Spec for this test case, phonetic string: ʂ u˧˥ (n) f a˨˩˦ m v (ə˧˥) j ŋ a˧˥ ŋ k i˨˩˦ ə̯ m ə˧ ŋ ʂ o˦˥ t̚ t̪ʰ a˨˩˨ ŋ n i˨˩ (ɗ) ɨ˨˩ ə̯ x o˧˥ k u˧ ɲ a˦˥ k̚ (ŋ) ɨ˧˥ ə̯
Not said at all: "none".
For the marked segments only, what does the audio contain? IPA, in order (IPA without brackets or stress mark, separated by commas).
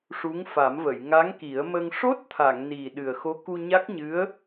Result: ŋ, ə˨˩˨, ɗ, ɲ